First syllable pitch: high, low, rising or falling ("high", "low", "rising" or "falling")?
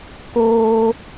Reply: high